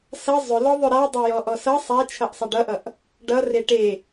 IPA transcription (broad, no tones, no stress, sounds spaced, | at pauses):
s ʌ zˤ ʏ l ɔ ðˤ ʏ ɾ a dˤ ʌ j ɔ ʔ ɔ s ʌ sˤ a t͡ʃʰ ʌ ʔ sˤ ʌ ɖ ʌ ʔ ʌ ʔ | ɖ ʌ r e ʈ e